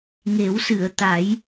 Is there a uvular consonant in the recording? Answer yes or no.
no